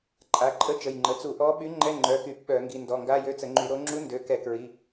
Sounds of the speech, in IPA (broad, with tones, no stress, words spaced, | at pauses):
ǃʼa˩˧˩ǃʼə˧˥˧ t͡ʃə˩˧˩jŋ͡ǃə˩˧˩ t͡su˧˩˧ʔɔ˧˥ ɓy˧˥ŋ͡ǃɛ˧˥˧ ŋ͡ǃœ˩˧˩xy˧˩˧p ɓœ˧˩˧ ŋɡi˩˧˩ndɔ˩˧˩ŋɡa˧˥˧jø˧˥˧ t͡sə˧˩˧ŋ͡ǃy˧˩˧ɾo˧˥ ŋ͡ǁu˧˥ndø˩˧˩ kɛ˧˩˧kɹi˩˧˩